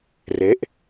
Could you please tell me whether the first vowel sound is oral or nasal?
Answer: oral